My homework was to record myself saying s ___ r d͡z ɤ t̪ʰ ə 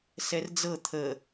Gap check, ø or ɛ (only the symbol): ɛ